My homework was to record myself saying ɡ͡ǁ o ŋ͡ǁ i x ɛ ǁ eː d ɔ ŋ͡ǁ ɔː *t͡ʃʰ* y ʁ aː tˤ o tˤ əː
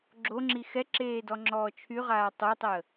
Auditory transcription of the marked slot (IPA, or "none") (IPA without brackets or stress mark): t͡ʃʰ